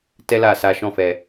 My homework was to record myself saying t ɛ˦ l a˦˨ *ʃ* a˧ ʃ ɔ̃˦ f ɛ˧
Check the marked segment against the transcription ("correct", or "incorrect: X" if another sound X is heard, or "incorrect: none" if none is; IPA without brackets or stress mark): incorrect: s